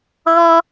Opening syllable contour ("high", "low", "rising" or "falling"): high